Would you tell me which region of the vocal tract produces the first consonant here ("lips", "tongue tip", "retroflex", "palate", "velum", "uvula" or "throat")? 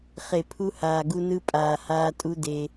uvula